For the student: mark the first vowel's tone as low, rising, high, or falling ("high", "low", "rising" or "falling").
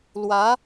rising